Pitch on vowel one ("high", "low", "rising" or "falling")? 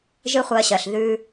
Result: high